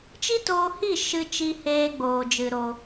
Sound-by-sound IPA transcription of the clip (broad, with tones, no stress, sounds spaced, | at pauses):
t͡ʃ i˦ t oː˧ h i˦˨ ʃ ɨ˧ t͡ʃ i˧ h eː˧ ɡ͡b oː˨ d͡ʒ ɨ˨ ɾ o˨